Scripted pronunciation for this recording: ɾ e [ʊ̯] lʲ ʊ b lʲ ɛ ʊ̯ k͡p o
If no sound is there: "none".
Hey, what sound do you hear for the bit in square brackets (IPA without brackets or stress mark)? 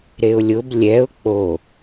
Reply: ʊ̯